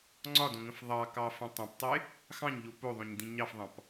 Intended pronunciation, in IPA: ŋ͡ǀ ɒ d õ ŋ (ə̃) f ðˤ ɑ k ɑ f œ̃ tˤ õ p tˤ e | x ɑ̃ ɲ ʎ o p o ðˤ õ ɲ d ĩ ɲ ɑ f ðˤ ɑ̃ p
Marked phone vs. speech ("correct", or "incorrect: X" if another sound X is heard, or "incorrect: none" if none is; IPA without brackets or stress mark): correct